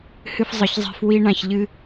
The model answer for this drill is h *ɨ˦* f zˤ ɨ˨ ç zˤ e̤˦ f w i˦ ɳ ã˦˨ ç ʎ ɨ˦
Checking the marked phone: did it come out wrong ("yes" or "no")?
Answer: no